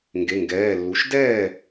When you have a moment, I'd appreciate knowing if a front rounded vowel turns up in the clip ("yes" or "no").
no